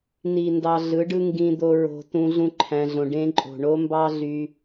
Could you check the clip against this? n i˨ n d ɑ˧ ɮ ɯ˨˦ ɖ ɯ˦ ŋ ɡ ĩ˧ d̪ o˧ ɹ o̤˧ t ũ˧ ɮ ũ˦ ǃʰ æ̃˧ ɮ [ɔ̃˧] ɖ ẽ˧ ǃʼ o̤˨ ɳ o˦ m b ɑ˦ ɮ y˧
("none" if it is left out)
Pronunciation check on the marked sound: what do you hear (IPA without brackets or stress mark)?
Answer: õ˧